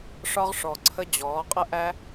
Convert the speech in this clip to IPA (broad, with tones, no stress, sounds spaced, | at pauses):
ʂ ɒ˥ ʁ ʂ ɔ˨ ǀʰ ə˥ d͡ʑ ɔː˩˥ qʼ ə˥ ʔ æ˥